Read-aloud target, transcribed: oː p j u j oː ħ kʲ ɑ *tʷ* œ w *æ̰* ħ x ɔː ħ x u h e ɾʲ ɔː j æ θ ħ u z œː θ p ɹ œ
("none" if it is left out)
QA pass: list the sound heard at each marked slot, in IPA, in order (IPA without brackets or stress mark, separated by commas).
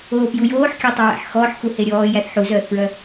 tˤ, æ̰